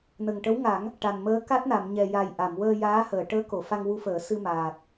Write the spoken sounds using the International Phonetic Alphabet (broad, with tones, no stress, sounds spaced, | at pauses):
n ə˨˩ ŋ ʈ ə˧˥ w ŋ a˨˩˦ ŋ | ʈ a˨˩ n m əː˧˥ k a˦˥ t̚ n a˨˩˨ m ɲ ɛ˨˩ j a˨˩ j ʔ a˨˩˨ m w əː˧ j aː˧˥ h əː˨˩˨ ʈ əː˧˥ k o˨˩˨ f a˧ ŋ w u˧ f əː˨˩˦ s ɨ˧ m aː˨˩ t̚